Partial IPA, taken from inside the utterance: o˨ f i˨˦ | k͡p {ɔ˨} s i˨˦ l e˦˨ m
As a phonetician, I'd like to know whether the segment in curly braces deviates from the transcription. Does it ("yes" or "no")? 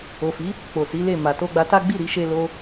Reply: yes